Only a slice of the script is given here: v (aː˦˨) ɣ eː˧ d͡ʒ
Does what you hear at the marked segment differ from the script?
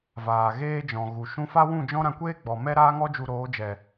yes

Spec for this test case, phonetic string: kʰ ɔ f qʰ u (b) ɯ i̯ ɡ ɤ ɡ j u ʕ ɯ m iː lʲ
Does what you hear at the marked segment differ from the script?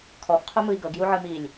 yes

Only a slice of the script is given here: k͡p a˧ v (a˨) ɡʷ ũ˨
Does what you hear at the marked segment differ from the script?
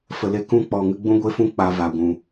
no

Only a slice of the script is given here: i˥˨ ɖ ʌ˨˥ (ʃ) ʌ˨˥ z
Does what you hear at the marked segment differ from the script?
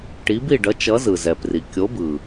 yes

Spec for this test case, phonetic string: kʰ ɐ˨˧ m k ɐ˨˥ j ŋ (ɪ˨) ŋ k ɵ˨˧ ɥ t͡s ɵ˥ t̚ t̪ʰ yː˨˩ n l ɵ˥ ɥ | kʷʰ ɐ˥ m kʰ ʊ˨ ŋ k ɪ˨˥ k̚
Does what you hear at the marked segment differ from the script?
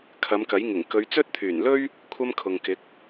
yes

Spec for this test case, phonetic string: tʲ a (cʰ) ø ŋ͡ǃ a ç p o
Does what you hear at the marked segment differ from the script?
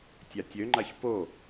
yes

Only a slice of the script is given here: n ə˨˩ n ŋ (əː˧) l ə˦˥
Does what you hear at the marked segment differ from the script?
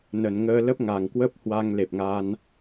no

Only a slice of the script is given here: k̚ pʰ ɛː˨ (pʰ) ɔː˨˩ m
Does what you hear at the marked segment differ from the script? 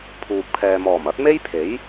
yes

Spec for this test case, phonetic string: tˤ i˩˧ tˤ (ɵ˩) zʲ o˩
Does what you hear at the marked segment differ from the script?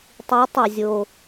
no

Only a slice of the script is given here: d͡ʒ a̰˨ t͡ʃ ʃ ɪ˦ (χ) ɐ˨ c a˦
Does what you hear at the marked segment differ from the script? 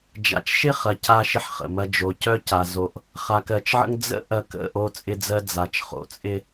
no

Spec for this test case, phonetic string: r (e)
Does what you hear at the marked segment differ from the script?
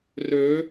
yes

